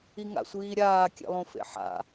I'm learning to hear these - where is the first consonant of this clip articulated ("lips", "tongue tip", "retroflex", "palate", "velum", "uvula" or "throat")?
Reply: velum